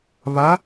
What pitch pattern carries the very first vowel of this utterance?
rising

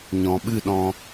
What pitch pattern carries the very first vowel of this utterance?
low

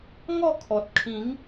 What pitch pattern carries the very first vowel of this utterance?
falling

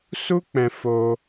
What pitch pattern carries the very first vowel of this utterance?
high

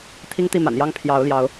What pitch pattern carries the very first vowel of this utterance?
high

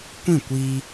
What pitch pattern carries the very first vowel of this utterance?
falling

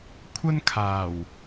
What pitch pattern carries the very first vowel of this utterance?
high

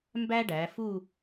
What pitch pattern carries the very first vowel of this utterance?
high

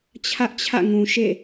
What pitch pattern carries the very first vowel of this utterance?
high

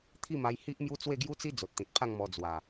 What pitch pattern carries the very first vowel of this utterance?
falling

